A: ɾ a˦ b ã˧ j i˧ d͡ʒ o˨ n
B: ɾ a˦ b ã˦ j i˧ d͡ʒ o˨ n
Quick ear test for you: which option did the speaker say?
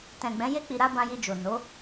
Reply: A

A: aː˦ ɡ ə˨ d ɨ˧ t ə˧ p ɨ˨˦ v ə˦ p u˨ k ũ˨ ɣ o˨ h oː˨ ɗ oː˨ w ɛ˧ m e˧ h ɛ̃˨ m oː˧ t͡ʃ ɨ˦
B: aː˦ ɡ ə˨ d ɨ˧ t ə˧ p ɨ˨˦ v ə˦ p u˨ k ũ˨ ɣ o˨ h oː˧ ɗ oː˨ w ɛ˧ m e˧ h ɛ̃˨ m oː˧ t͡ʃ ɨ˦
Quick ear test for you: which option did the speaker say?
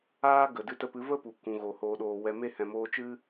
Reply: A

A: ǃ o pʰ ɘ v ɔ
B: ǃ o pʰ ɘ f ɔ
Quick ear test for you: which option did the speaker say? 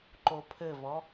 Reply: A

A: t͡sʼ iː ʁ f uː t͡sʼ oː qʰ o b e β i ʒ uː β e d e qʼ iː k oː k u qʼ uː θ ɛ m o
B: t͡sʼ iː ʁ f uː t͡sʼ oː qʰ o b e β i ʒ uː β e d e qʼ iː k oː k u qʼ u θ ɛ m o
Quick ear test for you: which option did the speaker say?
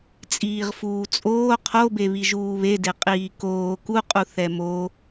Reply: B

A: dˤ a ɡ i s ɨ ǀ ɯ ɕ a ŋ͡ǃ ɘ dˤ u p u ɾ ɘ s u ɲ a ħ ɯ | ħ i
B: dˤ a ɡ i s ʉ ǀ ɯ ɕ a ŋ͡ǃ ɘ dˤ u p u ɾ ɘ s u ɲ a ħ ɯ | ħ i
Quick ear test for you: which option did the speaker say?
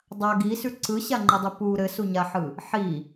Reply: B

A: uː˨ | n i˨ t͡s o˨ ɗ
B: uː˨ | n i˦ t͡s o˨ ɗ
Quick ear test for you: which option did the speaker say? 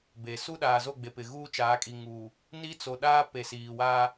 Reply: B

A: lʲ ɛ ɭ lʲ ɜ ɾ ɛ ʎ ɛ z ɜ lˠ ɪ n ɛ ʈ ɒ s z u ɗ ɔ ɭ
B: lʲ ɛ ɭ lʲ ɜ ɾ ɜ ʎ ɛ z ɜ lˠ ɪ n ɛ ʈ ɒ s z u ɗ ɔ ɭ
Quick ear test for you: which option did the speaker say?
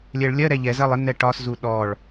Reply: A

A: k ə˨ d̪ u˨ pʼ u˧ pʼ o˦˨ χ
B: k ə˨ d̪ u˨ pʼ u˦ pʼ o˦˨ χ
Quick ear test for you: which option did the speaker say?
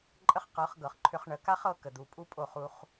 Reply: B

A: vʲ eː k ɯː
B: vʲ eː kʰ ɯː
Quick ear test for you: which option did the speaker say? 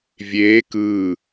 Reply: A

